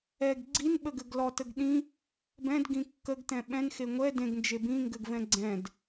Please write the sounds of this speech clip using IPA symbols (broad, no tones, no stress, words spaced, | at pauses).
ɛɡ ɡ͡ǀinɓəɡɘɡ lɔtəɡ ɗĩ | bɛ̃dɡĩ kːəɡtɛ̃ ɓɛ̃nxe ŋʷɛ dẽɡnd͡ʒe bĩŋɡɘɡvɛ̃ ɡ͡ǀɛ̃d